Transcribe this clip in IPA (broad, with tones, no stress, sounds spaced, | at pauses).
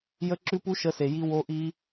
j ə˦˥ ǁ ʉ˦˥ p u˦˥ ʃ ə˦˥ s e˨ j i˦˥ w o˦˥ ʔ i˦˥